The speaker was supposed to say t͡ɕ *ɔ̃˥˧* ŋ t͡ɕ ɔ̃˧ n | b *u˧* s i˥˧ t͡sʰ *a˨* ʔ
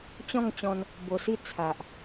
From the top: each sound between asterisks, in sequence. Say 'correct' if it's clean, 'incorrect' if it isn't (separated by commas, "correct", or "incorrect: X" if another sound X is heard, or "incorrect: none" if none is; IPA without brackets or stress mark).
correct, incorrect: o˧, correct